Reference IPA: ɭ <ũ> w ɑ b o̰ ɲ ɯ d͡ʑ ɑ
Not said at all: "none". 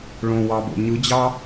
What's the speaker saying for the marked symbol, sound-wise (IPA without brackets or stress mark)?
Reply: õ